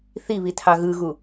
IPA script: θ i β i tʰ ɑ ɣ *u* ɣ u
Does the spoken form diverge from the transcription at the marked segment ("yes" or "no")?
yes